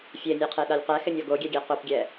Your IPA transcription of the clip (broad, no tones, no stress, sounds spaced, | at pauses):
fʲ e nʲ e qʰ e ɗ a lʲ q ɛ x ɪ nʲ ɔ ɡ o ɡʲ ɛ ɡʲ ɛ q ʊ p ɡʲ ɛ